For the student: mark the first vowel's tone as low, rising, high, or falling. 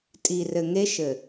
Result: low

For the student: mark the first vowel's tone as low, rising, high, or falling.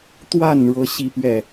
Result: falling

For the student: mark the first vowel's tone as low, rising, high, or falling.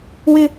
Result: high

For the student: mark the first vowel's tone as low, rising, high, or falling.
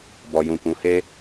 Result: low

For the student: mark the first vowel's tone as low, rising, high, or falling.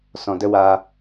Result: low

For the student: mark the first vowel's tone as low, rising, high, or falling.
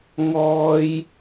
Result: high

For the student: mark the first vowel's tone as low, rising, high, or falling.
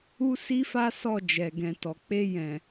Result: high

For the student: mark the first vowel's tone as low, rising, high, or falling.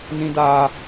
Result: high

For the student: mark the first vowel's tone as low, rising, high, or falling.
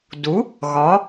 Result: rising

